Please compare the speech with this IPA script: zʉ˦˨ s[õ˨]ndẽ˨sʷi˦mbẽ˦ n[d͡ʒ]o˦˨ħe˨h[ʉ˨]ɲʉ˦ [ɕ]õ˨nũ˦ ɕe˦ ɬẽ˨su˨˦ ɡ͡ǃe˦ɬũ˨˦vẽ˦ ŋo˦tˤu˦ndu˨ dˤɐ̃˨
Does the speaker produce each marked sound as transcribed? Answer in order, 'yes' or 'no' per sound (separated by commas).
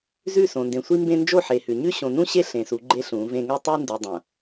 yes, yes, yes, yes